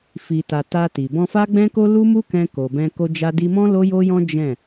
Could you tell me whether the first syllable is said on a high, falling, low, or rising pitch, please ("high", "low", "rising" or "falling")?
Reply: low